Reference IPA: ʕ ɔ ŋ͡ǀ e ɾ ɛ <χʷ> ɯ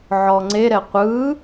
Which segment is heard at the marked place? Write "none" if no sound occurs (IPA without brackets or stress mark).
qʷ